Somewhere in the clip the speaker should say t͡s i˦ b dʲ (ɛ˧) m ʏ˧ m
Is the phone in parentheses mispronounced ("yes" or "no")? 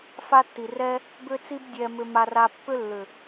no